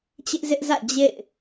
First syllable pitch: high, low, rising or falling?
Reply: high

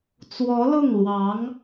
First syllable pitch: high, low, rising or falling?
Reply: rising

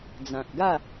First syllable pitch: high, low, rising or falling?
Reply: low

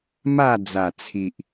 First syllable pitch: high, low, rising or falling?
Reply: falling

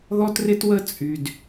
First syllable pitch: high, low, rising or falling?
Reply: high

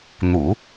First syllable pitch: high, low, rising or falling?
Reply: low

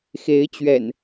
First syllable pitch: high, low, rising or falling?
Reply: rising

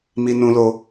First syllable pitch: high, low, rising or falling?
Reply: high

